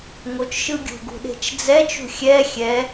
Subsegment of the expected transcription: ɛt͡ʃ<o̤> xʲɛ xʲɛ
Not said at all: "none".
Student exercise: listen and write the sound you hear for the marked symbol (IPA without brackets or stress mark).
ṳ